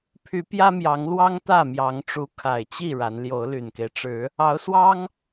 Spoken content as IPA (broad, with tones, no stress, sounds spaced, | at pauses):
pʰ y˨˦ p j ä˦ m j ɑ˨˦ ŋ l w ɑ˦ ŋ t̪ ä˥˨ m j ɑ˨˦ ŋ ʈ͡ʂ u˨˦ kʰ a˨˩ ɪ̯ t͡ɕ i˥˨ ɻ a˨˦ n l j o˨˦ ʊ̯ l y˨˩ n k e˦ ɪ̯ ʈ͡ʂ ɻ̩˨˦ | ɑ˨˦ ʊ̯ s w ɑ˦ ŋ